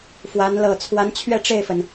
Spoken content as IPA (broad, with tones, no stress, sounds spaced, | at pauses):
f w a˧˥ n l ɤ˨˩ t͡sʰ w a˧˥ n t͡ɕʰ ɥ ɛ˥˧ ʈ͡ʂ e˥˩ ɪ̯ f ə˩ n